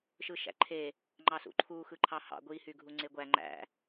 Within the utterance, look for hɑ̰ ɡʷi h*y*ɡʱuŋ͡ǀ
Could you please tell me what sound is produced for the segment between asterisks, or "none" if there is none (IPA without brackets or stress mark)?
y